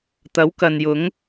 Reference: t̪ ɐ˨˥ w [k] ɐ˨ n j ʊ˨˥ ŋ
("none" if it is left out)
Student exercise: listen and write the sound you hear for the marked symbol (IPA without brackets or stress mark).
k